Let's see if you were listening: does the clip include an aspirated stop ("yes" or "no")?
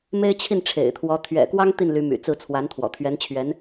yes